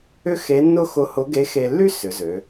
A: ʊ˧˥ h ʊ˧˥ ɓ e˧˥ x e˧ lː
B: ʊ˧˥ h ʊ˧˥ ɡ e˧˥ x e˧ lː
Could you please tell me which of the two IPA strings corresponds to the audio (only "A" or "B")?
B